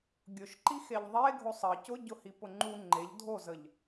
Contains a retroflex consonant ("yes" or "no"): no